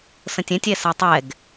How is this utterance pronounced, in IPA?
s ə̃ tʲ ɛ̃ tʲ ɛ s a tˤ ɛ ɡ

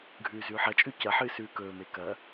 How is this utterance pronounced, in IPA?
ɡʱ ʉː z ʉː ħ ɐ t͡ʃʼ ʉ c ɐ ħ ɨː s ʉː k ɵː m e k ɐ

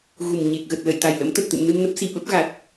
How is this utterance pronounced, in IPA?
ɣ u˨˩ m ɲ e˨˩ k̚ ɣ ə˨˩ t̚ l ə̰˧˨ j t̪ a˨˩ j l ə̰˧˥ m t̪ ə˨˩ t̚ t̪ ɨ̰˧˨ m n ɨ˧ m n ə˦˥ p̚ s i˨˩ ɓ ə˦˥ p̚ ɣ a˨˩ t̚

